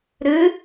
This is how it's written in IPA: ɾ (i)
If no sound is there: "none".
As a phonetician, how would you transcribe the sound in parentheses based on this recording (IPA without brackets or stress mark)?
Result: ɨ